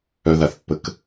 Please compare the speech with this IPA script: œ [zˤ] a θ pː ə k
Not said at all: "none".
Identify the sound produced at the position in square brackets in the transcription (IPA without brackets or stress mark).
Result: ð